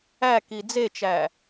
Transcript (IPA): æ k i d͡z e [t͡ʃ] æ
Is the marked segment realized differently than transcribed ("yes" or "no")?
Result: no